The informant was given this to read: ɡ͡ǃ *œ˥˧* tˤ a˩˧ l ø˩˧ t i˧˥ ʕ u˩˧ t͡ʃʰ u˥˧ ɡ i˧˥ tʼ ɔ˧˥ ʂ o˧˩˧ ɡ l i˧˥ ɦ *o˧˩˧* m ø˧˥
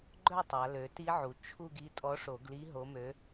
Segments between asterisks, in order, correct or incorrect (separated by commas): correct, incorrect